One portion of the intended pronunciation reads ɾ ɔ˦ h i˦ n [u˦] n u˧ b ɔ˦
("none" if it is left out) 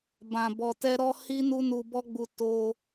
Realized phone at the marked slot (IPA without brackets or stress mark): u˦